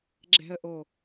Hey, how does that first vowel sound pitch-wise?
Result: low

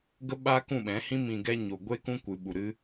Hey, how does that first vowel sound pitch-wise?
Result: high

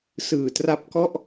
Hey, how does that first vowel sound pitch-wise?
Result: low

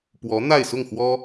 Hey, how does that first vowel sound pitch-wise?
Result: rising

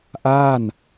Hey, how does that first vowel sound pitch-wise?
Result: falling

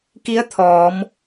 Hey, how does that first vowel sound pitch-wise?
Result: rising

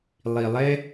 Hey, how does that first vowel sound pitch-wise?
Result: low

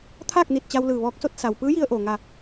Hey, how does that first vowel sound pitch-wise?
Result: falling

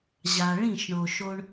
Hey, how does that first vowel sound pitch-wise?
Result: low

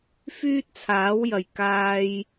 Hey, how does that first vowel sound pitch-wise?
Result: high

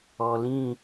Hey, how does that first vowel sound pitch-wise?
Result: low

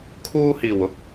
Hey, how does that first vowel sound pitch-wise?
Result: high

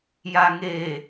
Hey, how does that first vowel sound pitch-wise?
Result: low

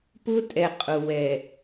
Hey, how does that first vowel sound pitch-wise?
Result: high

